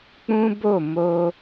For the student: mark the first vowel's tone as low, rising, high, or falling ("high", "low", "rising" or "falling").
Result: high